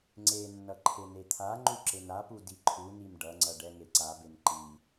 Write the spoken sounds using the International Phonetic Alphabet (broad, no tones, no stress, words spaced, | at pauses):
ŋ͡ǀenːʌ ǃʰenet̪ʰaŋ͡ǃu ǁenapu diǃʰunim ɖʌŋ͡ǀʌ ɖɛŋeǀabem ǃi